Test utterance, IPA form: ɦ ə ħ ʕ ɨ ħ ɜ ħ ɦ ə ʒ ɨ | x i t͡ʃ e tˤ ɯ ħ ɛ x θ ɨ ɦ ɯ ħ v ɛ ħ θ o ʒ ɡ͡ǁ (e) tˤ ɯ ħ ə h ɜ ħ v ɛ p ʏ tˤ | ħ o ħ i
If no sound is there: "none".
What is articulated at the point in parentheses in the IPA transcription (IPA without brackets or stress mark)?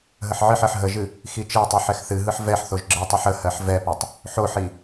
ɨ